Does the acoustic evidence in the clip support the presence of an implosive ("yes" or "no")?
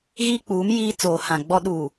yes